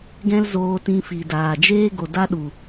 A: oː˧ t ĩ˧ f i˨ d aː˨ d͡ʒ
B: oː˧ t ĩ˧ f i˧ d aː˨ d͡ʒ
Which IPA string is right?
A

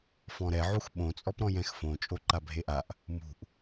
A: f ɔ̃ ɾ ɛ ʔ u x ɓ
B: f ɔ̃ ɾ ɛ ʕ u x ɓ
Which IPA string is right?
B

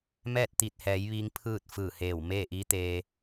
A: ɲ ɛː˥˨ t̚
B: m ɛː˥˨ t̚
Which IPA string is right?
B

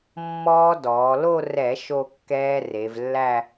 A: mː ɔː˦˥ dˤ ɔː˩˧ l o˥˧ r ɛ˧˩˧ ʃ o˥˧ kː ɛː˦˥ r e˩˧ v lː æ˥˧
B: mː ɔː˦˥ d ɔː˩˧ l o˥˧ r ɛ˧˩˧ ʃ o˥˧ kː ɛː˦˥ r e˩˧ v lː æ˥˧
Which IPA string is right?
B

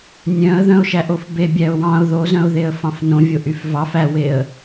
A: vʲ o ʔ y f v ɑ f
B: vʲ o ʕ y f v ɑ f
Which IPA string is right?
A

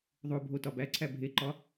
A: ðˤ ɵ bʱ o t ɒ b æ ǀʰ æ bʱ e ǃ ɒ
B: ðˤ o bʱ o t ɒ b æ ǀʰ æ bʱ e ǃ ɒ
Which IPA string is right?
B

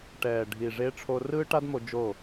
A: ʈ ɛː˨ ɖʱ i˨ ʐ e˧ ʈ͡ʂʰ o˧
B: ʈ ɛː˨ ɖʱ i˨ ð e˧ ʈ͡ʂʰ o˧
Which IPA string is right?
A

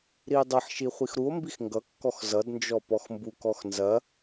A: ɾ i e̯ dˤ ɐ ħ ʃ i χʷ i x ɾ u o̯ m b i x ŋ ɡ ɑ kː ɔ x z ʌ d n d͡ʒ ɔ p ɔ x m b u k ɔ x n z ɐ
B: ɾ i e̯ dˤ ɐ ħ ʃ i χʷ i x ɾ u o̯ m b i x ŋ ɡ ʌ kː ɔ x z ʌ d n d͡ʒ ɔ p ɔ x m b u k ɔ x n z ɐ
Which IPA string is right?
B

